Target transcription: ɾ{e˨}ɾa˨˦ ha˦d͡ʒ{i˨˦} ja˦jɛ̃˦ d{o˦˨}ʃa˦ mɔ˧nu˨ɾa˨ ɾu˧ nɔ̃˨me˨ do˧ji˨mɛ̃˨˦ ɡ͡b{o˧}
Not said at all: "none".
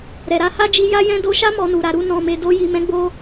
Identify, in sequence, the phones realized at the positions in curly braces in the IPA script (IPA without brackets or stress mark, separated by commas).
ɛ˨, i˧, o˧, o˧